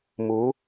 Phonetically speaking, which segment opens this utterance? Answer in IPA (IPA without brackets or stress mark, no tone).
m